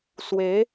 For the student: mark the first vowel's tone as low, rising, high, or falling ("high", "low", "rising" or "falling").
rising